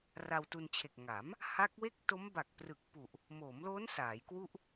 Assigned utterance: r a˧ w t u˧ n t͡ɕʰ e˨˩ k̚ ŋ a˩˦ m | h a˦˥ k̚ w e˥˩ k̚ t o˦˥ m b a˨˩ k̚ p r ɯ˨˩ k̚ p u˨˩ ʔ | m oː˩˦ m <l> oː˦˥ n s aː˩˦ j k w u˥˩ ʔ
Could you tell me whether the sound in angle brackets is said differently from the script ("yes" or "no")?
no